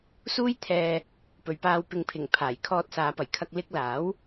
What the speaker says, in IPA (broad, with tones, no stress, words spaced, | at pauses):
suː˥jt̪ʰɛː˧ | pɵ˨ɥpaː˧w pɪ˨ŋpʰɪ˨˩ŋ pʰaː˨˩jkʰɔː˧t̚saː˨˧ pɐ˨˩jkʰɐ˧k̚ lɪ˥k̚ laː˨˥w